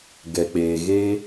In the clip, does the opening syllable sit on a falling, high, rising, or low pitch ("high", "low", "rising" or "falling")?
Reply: low